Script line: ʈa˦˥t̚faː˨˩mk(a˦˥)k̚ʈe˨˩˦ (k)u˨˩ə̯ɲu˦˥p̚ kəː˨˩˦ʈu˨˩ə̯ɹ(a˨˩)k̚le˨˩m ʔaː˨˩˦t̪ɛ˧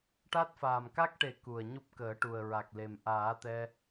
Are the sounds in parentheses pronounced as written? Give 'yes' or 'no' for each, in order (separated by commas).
yes, yes, yes